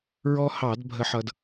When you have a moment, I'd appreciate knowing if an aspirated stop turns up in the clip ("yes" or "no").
no